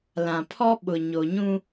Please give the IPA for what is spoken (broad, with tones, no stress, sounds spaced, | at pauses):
l ã˨ pʰ ɔ˦ ɓ ʊ˨ ɲ o˨ ɲ ũ˦